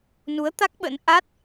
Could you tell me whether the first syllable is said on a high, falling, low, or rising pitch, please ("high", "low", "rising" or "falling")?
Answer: rising